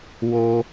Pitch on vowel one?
high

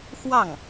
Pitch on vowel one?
falling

